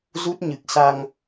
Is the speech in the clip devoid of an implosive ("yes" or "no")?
yes